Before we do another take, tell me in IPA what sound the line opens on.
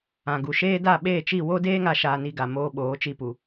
ã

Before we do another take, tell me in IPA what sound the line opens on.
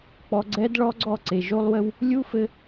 k͡p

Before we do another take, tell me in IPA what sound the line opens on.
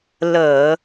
l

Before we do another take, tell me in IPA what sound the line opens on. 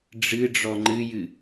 ɖ͡ʐ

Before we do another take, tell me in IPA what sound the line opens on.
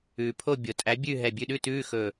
ʉː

